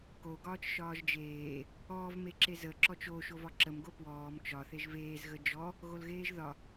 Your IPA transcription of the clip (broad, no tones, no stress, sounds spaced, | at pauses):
k o ɡ ɒː t͡ʃ ʃ ɒː ʒ d͡ʒ eː | ɔː v m e ǁ e z ə ǁ ɔ t͡ʃ o ʃ o v ɒ ǁ ə m ɡ o p w ɔː m t͡ʃ ɒ θ e ʒ v eː z ɣ ə d͡ʒ ɔ | ɣ o l ɣ eː ʒ ð ɒ